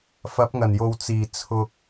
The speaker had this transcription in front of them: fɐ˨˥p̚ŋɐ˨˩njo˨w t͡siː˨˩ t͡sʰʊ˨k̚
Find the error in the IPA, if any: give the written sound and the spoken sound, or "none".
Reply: none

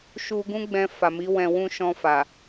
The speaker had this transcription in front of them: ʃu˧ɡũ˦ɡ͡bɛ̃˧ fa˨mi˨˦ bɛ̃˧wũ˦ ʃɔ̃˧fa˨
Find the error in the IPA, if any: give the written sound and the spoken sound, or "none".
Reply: b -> w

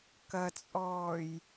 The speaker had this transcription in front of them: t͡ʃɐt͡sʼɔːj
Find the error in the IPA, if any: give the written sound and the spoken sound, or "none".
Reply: t͡ʃ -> k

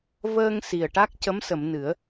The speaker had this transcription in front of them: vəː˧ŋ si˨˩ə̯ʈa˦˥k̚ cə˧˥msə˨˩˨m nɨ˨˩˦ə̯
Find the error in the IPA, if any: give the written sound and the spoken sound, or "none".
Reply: none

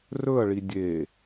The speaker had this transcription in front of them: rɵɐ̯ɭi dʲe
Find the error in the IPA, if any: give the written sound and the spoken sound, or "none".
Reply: none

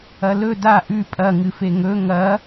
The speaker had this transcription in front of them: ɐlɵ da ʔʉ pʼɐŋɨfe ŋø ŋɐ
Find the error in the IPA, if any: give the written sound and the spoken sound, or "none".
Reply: ø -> ɵ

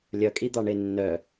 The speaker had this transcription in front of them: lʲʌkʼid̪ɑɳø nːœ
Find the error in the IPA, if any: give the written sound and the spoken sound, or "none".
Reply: ø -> e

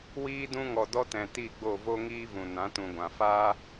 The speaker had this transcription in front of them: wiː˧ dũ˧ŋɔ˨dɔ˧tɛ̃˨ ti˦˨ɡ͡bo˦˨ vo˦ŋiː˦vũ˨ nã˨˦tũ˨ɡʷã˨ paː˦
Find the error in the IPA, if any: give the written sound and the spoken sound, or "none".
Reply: p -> f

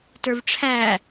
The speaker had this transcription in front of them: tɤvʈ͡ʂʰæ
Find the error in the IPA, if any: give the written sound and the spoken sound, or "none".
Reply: ɤ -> ə˞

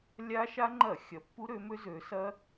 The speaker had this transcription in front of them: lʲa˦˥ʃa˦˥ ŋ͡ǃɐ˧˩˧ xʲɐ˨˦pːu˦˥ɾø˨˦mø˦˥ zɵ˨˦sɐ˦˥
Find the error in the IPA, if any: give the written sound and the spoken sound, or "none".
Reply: ɵ˨˦ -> ø˨˦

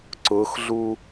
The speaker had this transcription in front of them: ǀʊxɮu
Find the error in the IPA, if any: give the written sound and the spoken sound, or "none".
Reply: none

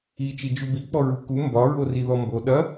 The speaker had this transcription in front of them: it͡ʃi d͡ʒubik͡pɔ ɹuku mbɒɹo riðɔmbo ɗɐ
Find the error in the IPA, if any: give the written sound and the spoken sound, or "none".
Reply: none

